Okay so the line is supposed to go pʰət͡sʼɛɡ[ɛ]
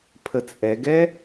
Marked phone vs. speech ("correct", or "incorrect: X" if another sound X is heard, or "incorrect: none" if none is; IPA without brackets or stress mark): correct